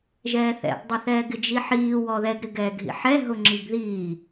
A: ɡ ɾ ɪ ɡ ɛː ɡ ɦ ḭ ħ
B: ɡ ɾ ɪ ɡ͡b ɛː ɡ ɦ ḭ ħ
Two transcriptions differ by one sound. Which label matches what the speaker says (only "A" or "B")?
A